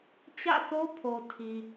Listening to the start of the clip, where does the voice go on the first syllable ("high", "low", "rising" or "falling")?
falling